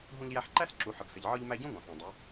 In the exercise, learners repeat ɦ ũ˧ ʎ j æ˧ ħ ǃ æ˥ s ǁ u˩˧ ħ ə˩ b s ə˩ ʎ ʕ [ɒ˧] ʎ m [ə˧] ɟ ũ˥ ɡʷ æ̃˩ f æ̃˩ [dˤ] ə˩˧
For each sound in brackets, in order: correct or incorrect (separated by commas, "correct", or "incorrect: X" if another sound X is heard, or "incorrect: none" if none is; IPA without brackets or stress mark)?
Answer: correct, incorrect: æ˧, correct